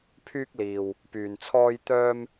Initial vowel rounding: rounded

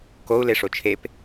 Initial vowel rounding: rounded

